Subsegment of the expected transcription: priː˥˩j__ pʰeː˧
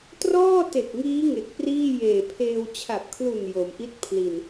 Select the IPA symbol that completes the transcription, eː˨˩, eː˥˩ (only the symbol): eː˨˩